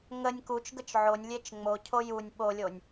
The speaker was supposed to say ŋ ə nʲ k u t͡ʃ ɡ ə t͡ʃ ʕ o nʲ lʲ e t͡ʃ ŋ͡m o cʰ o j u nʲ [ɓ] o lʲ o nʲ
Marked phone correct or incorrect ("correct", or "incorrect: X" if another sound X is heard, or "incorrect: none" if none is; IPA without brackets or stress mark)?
correct